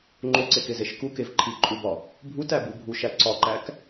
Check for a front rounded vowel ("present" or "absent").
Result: absent